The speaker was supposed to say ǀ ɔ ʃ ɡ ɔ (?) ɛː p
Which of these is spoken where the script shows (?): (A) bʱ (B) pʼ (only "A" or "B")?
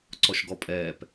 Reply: B